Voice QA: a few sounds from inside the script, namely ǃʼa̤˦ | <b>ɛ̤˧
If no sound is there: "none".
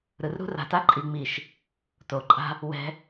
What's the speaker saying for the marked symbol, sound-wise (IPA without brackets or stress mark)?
w